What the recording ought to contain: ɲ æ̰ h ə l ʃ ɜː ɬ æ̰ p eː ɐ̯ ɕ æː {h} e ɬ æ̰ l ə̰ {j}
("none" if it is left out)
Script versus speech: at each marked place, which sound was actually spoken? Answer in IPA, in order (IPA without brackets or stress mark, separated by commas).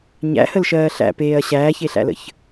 ç, ç